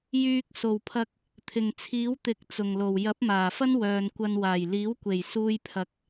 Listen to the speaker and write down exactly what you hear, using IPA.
j yː˧ k̚ s o˨˩ w pʰ ɐ˧ k̚ | t̪ʰ ɪ˨˩ ŋ t͡sʰ iː˨˥ w t̪ ɪ˨˥ k̚ t͡s ʊ˨˩ ŋ l o˨˩ w j ɐ˨˥ p̚ m aː˨˩ f ɐ˥ n w œː˨ n kʷ ɐ˧ n w aː˨˩ j l iː˨˥ w kʷ e˨˩ j s uː˧ j pʰ ɐ˨˥ k̚

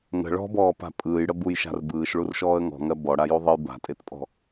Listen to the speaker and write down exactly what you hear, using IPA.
ŋ ə̤ ɭ ɔ̤ b ɔː p a̤ pʼ ɯː j ɽ ə b u j ʃ a̤ r b ɯː ʃ ɭ u r ʃ ɔː ə̯ ŋ ɔ̤ ŋ ɜ b ɔ ɽ a j u ðˤ ə j b a̤ tʼ e t pʼ ɔ̤

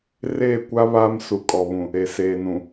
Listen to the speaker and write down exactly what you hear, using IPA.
r eː˦˨ kʷ a˦ β aː˦ m s u˨ kʼ ɔ˨ β ũ˨ | e˨ s eː˨ n ũ˨

